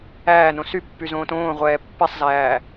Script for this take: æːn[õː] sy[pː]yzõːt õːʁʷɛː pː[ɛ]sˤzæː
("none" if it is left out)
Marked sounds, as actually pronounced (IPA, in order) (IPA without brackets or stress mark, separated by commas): õ, pː, ɛ